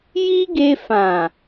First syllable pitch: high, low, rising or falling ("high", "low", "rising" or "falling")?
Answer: high